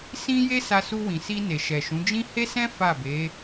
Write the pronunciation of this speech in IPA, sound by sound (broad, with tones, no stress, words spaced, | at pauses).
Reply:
sĩ˦je˦ sa˧su˧wĩ˨si˧ ne˨ʃɛ˨ʃũ˨˦ d͡ʒĩ˦ he˦sɛ̃˦ fa˦˨be˨˦